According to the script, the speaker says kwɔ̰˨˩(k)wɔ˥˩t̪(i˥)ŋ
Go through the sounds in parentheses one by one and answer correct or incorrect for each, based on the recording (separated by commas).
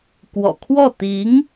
incorrect, incorrect